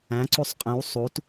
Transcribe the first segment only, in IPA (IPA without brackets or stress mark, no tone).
æ̃